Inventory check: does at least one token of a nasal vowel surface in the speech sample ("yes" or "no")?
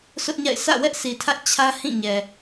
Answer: yes